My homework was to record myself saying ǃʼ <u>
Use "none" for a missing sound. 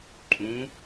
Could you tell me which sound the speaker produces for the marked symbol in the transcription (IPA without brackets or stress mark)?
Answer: ũ